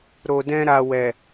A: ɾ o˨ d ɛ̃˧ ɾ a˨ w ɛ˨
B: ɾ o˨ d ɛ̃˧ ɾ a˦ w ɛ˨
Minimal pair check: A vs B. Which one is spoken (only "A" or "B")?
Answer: A